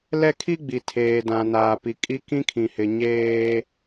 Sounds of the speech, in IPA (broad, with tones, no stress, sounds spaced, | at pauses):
l ɛ˦ kʰ i˦ ɡ͡b i˨ tʰ eː˨ d ã˨ n aː˨ p i˨ kʼ i˦ k ĩ˦ kʰ ĩ˨ h ɪ˨ ɲ eː˦